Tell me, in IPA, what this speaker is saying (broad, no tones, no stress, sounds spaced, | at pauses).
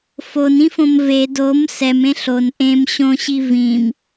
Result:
f o n ĩ f õ m v e d o m s ɛ m ẽ ɬ o n ʔ ẽ m ɕ õ ɕ i v ĩ m